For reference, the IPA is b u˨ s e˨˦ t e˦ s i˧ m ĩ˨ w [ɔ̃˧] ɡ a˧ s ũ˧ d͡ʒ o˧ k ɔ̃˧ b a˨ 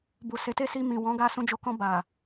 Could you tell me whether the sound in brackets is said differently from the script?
yes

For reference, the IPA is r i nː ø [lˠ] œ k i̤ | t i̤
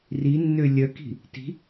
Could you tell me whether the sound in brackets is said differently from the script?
yes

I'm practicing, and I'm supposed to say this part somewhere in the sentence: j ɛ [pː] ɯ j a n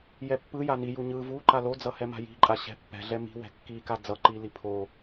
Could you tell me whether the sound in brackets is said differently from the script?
no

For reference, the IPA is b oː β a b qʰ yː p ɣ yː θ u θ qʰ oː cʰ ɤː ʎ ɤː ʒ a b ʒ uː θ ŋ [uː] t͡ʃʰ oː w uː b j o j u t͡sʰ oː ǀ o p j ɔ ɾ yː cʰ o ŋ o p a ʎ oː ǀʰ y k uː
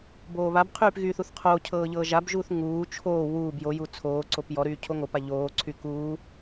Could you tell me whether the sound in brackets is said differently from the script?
no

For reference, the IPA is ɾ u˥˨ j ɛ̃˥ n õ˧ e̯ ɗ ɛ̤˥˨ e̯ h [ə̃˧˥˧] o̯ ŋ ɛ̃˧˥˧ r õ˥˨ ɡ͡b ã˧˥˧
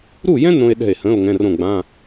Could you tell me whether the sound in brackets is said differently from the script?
no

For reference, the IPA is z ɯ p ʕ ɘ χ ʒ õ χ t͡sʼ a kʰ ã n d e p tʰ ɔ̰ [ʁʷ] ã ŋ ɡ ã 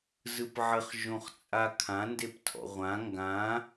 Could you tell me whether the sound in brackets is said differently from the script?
no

